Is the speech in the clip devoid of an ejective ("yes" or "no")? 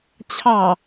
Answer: yes